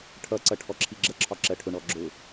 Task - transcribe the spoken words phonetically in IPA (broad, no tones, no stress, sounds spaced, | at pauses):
ʈʰ ʌ ǀ ʌ ʈʰ ɔ ǁʰ i ɡ͡ǁ ə ǁʰ ɒ ǁ ɜ ʈʰ ʊ ɳ ɔ ɡ͡ǁ ʊ